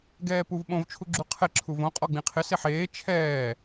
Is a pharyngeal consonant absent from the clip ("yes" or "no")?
no